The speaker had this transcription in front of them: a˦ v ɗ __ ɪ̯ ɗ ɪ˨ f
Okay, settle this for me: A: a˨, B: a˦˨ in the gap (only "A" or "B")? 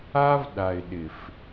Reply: A